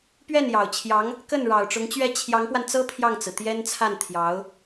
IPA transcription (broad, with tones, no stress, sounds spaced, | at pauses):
p ɥ ɛ˥˩ n j ɑ˨˩ ʊ̯ t͡ɕʰ j ɑ˧˥ ŋ | k ə˥˩ n ɻ ɑ˨˩ ʊ̯ ʈ͡ʂ ʊ˧˥ ŋ t͡ɕ ɥ ɛ˥˩ t͡ɕʰ j ɑ˧˥ ŋ p w a˧ n t͡s ɤ˥ pʰ j ɑ˥˩ ŋ t͡s ɹ̩˩ t̪ j ɛ˥ n t͡sʰ a˥˩ n t̪ʰ j ɑ˧˥ ʊ̯